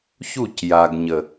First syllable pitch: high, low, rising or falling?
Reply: falling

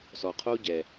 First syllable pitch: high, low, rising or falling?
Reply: low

